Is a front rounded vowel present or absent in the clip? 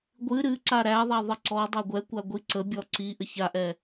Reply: absent